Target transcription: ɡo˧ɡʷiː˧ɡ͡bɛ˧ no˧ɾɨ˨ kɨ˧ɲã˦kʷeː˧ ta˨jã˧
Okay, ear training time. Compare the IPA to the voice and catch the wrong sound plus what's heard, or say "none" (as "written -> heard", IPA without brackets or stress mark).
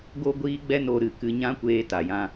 none